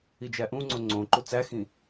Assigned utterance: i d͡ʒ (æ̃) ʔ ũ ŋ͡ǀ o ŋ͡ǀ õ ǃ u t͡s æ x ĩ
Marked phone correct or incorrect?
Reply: incorrect